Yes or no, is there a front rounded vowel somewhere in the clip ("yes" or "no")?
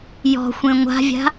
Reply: no